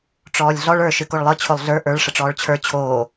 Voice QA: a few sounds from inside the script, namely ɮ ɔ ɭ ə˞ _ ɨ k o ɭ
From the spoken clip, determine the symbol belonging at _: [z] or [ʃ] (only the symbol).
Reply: ʃ